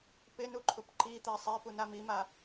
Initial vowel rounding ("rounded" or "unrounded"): unrounded